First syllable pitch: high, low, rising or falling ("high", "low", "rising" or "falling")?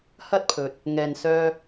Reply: high